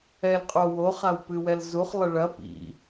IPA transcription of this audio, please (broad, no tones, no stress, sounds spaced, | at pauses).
ɛ l qʼ o w o χ a w p ɨ w ɛ l z u χ lˠ ɘ ɭ ɐ p ḭ